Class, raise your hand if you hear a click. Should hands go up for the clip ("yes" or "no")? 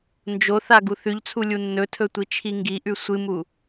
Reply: no